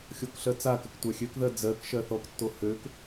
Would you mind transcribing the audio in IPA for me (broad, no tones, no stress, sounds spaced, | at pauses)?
xʲ o k ɬ ɜ t͡s a k ə k tʷ a xʲ ø k ð ɜ d͡z ɜ k ʃ ɜ θ ɔ k tː o h ø k